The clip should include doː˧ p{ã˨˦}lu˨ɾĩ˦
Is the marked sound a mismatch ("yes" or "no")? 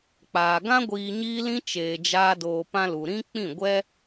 yes